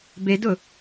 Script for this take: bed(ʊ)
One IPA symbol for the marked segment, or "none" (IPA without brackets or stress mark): ʊ